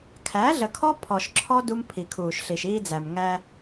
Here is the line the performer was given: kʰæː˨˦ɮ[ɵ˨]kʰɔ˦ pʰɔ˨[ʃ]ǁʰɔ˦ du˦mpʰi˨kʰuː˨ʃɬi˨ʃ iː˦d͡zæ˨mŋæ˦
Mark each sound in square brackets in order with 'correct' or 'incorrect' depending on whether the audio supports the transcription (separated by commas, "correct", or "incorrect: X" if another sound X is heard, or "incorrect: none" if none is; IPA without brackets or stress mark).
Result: incorrect: ə˨, correct